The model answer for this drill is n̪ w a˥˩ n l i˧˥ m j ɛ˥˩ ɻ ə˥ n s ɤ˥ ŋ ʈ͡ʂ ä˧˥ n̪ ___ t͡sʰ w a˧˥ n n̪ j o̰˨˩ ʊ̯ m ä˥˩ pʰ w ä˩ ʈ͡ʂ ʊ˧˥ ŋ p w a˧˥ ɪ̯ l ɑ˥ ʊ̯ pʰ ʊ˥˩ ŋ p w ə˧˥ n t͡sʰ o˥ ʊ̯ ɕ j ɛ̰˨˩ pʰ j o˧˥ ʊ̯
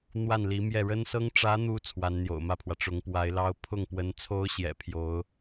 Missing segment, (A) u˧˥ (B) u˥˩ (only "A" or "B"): A